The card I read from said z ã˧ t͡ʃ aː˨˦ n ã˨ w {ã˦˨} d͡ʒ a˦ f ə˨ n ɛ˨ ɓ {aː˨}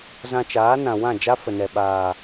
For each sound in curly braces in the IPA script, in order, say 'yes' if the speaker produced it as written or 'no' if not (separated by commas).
yes, yes